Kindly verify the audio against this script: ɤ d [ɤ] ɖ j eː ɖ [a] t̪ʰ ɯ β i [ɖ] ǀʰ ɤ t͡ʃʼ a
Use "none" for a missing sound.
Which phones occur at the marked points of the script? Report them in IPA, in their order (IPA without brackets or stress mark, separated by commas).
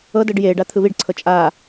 ɤ, a, ɖ